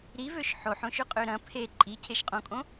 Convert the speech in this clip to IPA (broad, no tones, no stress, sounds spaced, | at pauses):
ɾ i v ø ʃ ħ o ħ õ ʃ ʏ qʼ ø ɾ ɐ̃ pʰ e ǃʼ i cʰ e ʃ qʼ õ kʼ õ